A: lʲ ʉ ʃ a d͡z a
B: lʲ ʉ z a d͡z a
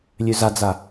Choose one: B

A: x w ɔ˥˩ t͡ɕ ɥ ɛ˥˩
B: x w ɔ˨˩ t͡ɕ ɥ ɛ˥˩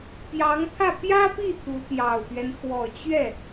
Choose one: B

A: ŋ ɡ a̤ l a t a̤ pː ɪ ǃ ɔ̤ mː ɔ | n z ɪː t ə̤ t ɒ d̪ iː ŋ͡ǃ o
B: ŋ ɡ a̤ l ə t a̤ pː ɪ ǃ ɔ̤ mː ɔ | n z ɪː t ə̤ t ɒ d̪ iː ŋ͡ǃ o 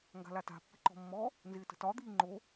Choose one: A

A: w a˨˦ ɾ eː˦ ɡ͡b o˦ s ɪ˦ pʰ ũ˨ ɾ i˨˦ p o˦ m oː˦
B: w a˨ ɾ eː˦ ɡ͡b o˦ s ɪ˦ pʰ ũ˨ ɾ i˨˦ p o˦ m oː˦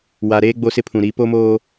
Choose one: B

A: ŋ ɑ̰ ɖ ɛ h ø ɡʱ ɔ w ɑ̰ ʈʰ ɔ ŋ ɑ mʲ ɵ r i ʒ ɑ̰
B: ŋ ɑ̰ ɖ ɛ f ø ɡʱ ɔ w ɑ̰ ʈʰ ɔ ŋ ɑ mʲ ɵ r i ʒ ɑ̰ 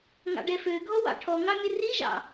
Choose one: B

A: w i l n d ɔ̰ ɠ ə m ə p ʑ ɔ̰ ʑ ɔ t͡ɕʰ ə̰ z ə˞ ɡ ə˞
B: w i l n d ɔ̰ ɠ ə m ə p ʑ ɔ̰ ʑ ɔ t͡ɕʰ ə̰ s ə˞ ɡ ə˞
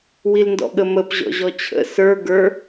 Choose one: B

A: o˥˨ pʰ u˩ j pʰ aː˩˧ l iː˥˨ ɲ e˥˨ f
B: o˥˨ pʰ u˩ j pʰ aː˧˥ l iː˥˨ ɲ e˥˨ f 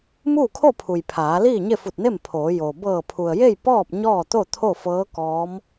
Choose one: A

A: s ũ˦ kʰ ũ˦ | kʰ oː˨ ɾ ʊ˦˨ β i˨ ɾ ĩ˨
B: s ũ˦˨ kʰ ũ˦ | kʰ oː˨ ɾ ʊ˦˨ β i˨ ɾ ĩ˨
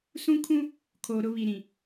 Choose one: A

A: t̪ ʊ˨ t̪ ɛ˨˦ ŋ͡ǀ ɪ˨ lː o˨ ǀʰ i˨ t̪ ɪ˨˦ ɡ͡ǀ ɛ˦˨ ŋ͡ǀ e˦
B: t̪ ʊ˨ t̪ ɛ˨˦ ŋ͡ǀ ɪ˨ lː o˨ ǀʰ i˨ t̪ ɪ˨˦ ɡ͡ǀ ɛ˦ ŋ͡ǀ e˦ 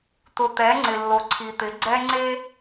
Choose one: B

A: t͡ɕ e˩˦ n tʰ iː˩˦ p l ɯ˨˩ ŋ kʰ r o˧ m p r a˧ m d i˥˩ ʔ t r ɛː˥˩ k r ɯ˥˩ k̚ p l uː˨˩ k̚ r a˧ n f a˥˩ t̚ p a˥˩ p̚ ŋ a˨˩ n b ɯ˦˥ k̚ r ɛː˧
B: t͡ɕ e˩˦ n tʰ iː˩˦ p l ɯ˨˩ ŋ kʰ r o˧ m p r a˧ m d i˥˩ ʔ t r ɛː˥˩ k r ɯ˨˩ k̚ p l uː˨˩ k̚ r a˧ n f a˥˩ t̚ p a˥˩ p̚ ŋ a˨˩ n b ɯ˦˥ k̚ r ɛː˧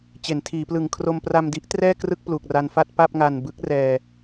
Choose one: A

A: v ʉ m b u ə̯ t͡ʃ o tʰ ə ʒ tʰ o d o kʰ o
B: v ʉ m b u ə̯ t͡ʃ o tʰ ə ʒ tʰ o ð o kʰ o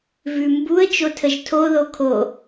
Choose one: B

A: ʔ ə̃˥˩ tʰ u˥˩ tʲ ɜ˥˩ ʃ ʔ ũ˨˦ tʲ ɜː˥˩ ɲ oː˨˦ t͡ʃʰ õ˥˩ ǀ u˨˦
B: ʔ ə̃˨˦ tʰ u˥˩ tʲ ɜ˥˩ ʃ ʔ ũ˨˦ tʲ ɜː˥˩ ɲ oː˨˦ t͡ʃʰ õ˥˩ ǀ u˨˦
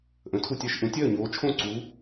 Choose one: B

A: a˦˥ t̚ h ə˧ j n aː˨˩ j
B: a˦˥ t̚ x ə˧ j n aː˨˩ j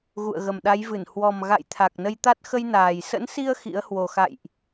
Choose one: B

